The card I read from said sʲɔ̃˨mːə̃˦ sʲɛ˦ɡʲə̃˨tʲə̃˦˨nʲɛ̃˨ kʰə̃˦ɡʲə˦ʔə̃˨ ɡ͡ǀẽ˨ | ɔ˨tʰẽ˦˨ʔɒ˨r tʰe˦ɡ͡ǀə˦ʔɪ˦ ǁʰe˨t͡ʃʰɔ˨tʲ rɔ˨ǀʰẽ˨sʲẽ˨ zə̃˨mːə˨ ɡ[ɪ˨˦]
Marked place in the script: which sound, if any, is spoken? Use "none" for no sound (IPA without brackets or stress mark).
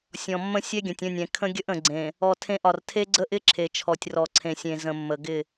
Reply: ɪ˦˨